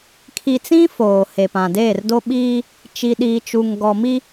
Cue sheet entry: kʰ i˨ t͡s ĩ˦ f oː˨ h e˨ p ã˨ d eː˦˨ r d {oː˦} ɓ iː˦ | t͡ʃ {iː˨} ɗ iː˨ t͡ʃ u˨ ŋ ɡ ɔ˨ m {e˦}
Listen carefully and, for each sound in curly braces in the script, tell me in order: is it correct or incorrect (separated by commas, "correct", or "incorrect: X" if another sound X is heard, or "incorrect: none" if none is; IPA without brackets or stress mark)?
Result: incorrect: o˦, incorrect: i˨, incorrect: i˦